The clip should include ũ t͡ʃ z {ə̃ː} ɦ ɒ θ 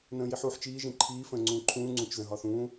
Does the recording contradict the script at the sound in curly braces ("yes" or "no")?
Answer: yes